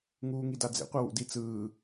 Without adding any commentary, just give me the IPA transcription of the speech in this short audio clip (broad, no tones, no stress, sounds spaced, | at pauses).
ŋ uː ŋ i d a d͡z ḛ qʷ a w ṵ d i t͡s ɯː